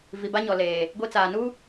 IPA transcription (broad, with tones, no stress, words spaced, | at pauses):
vi˨ ba˦ɲɔ˨leː˨ | ɡʷi˦t͡saː˨ nu˦